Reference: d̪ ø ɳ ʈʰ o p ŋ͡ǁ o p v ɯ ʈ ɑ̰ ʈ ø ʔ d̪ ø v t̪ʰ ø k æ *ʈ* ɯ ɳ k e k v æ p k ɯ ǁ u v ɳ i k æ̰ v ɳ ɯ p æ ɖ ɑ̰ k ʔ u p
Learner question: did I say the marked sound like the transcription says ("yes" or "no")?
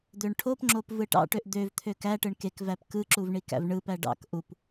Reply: yes